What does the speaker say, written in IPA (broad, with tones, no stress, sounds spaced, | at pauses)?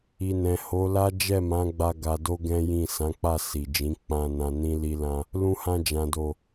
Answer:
i˨ n ɛ̃˨ h o˨˦ l a˦ d͡ʒ ɛ˦˨ m ã˨˦ ɡ͡b a˧ ɡ a˧ d o˦ ɡ ɛ̃˦ j ĩ˦˨ s ã˨˦ k͡p a˦˨ s i˨ d͡ʒ ĩ˨˦ k͡p ã˧ n ã˧ n ĩ˦ l i˦ l ã˦ | l ũ˧ h ã˧ d͡ʒ ã˨ d o˨